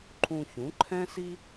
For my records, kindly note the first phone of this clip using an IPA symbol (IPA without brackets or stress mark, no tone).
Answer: ǃʰ